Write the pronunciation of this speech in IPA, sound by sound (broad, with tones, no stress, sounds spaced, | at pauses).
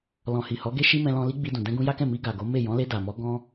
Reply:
l ɔ̃˨ h i˨ h ɔ˨˦ ɡ e˦ ʃ i˦ m ɛ̃˧ l ɔ̃˧ l i˦ ɡ͡b i˧ d ũ˨ d ɛ̃˧ ɡ ũ˧ j a˦ k ɛ̃˦˨ m i˧ ɡ a˨ ɡ o˨˦ m e˦˨ j ɔ̃˨˦ l e˧ d a˨ m ɔ˨˦ ɡ ɔ̃˧